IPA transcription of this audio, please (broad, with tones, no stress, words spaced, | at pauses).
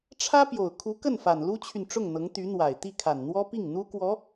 ʈ͡ʂʰä˥ pjo˨˩ʊ̯ kʰu˧˥ kə˥˩nfa˨˩n lu˥t͡ɕʰy˨nʈ͡ʂʊ˥˩ŋn̪ɤ˧˥ŋ t̪y˧˥n̪wa˨˩ɪ̯t̪i˥˩ kʰa˨˩nn̪wɔ˥pi˥˩ŋ n̪u˥kwɔ˧˥